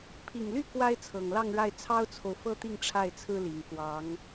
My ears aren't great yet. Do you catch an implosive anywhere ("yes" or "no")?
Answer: no